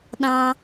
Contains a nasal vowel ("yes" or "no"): yes